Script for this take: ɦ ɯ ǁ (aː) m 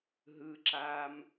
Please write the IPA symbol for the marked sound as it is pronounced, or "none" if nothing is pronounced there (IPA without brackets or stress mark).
aː